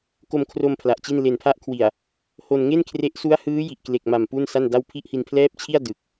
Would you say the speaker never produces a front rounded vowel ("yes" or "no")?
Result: yes